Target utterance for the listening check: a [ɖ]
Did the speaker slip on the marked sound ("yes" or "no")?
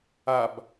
yes